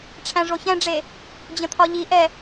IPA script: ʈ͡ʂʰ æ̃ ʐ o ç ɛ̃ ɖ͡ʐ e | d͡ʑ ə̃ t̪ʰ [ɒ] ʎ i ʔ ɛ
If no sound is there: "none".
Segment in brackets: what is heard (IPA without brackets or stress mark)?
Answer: ɒ